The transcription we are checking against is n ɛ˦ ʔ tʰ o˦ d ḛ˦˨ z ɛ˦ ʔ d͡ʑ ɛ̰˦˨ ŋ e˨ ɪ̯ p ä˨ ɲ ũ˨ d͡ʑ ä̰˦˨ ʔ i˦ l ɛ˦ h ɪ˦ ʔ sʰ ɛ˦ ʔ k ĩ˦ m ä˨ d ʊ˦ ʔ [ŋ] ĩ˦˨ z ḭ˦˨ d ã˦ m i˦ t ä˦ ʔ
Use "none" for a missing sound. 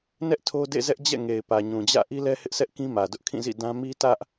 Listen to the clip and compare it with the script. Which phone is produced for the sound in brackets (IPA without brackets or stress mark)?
kʰ